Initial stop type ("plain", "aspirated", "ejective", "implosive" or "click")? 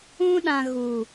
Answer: implosive